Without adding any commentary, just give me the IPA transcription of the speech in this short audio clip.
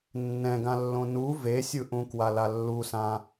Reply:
nː ɛ̃ ɡ ã lː õ n u v e sʲ ɯ ʔ ũ k w a l a lː u s ã

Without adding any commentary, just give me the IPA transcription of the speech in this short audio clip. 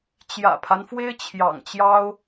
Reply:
t͡ɕ j ä̰˨˩ pʰ a˦ n f w e˥ ɪ̯ t͡ɕʰ j ɑ̰˨˩ ŋ t͡ɕ j ɑ˥ ʊ̯

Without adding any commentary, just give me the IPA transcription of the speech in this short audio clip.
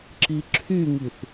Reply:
ǁ i ǁʰ y ŋ i θ

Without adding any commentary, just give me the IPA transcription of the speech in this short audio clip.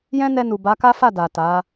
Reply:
j ɛ̃˦ n ɛ˧ n u˨ b a˨˦ k a˦ f a˦˨ d a˨ t a˨˦

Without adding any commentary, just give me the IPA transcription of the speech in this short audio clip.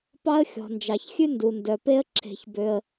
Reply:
p ɑ˥ ə̯ xʲ ɔ̤˩ n d͡ʒ ɑ˩ ç xʲ ʉ˥ n d u˩ n d œ˩ p e˦ ə̯ ǁʰ e̤˨ ç b ø˨ ə̯

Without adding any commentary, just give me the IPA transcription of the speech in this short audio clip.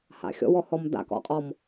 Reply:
h a̰ xʲ ɔ̰ w ɔ h ɔ m d a̰ k ɔ̰ qʼ ɔ m

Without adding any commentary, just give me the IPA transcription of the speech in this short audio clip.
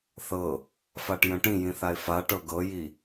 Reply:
θ ɤ | f a ʈ j ə̃ ʈ ĩ j ĩ θ a ɪ̯ f a ʈ ɤ ɡ ɤ j i

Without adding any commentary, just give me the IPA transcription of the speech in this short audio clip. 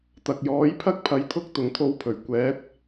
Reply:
t̪ ɐ˨ k̚ j ɔː˨˥ j pʰ ɐ˥ k̚ pʰ ɐ˨˧ j t̪ʰ ʊ˥ k̚ t̪ ʊ˨ ŋ t̪ʰ o˧ w pʰ ɵ˨˩ ɥ kʷ ɛː˨˥ t̚

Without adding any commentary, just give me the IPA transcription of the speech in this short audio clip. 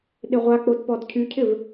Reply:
ɗ ɪ ʁʷ a k͡p o d p ɔ d cʰ y cʰ ɪ v

